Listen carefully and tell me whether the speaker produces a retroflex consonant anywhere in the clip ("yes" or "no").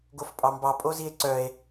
no